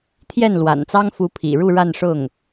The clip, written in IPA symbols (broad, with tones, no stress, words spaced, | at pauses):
t̪ʰjɛ˥˩nlwa̰˨˩nt͡sɑ˥ŋ fu˧˥pʰḭ˨˩ɻu˥˧ ɻa˥˧nʂʊ˥˩ŋ